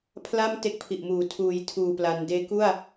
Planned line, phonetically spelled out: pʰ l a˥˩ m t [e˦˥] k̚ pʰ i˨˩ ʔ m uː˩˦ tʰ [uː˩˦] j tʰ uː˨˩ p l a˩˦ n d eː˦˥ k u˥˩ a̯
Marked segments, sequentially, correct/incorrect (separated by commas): correct, correct